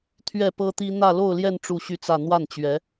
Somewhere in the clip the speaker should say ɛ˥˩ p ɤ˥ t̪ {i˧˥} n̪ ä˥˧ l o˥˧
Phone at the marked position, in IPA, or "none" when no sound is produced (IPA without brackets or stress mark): i˥